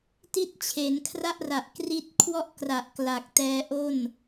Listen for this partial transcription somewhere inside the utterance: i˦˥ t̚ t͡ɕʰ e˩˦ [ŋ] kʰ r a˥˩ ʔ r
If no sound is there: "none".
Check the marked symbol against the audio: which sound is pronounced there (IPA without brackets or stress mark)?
n